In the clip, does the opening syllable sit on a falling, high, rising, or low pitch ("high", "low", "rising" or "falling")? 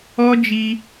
high